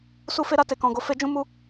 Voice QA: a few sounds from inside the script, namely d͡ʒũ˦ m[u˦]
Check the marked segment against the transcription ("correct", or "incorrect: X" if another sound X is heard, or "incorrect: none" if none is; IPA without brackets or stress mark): correct